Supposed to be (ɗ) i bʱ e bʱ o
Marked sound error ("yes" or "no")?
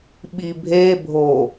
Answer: yes